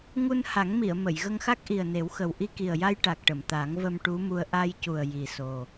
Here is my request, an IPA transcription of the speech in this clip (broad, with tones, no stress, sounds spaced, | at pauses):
ŋ u˧ n h a˨˩˦ ŋ m i˨˩˨ ə̯ m ə˨˩˨ j ɣ ə˧ ŋ x a˦˥ k̚ ʔ i˨˩ ə̯ n e˨˩˦ w x ə˨˩ w ʔ i˧ k i˨˩ ə̯ j a˧ j ʈ a˨˩ k̚ ʈ ə˨˩˨ m t̪ a˨˩˦ ŋ v ə˧ m ʈ u˧˥ m u˧ ə̯ ʔ a˧ j c u˨˩ ə̯ j i˨˩ s o˨˩